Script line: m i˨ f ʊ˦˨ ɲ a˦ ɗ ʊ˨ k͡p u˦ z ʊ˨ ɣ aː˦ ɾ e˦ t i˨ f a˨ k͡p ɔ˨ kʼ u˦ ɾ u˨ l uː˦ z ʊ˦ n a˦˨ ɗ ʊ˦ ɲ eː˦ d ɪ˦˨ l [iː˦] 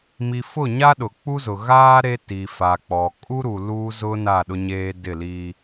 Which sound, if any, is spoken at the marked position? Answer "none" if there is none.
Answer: iː˦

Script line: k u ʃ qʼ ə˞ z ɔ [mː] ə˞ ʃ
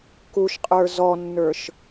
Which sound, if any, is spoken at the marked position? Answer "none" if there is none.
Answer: nː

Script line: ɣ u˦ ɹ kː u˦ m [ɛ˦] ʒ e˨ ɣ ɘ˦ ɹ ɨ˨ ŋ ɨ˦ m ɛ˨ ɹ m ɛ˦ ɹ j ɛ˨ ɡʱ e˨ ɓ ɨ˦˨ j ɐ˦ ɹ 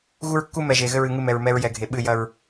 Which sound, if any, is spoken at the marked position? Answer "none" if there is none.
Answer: ɛ˨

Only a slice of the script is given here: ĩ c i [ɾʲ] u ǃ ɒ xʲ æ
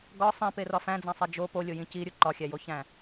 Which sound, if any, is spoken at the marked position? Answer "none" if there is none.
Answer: ɾʲ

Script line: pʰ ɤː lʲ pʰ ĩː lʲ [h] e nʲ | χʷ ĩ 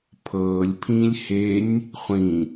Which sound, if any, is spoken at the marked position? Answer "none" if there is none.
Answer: h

